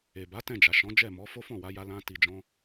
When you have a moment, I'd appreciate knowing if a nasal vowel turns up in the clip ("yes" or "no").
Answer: yes